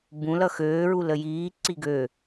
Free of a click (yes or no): no